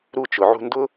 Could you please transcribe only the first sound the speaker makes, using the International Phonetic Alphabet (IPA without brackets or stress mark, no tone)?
ɾ